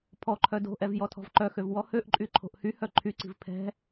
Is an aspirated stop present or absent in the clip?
present